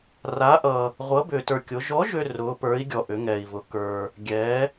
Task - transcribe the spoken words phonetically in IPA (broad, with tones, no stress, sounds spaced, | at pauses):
r a˧˥ ʔ ʌ˧ | ʁʷ ʌ˧˥ b ʏː˧ t ə˞˧ kʲ ʊ˧˥ ʒ ɔ˧˥ ʒ ʏ˧ r ʊː˧˥ p ə˞˧˥ i̯ ɡʲ ɔ˧ ʔ ʏ˧˥ ŋ ɛː˧ i̯ v ʊ˧ k ə˞˧ | ɡʲ ɛː˧˥